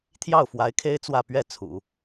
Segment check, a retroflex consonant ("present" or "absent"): absent